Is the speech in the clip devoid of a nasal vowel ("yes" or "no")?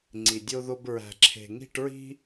yes